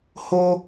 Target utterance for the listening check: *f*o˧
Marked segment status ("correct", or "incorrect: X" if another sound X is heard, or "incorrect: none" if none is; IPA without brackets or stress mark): incorrect: h